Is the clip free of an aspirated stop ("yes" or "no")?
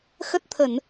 no